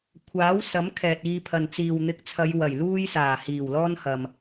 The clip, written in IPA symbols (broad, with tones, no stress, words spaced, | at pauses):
kʷʰaː˨˥w sɐ˨˥m kʰɛː˨t̚iː˧pʰɐ˨n t͡siː˨wn̪ɪ˧k̚t͡sʰɐ˨˧j wɐ˨˩jluː˥jsaː˨˩ hiː˨˩wlɔː˥nhɐ˨m